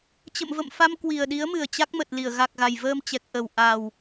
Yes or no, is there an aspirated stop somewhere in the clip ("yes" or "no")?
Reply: no